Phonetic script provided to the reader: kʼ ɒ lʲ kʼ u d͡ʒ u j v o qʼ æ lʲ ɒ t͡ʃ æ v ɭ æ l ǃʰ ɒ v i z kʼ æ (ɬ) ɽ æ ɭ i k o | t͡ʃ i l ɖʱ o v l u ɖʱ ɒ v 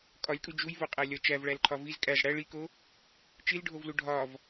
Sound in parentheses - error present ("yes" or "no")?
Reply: yes